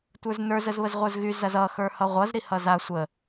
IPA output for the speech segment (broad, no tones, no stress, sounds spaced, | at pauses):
tʷ ə˞ z n ə˞ z ə z β ə z ʁʷ ə˞ z ɣ y z ɐ z ʌ x ə˞ h ʌ ʁʷ ʌ z ɾ i h ʌ z a sʷ ə